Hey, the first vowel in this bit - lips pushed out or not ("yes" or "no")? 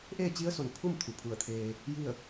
no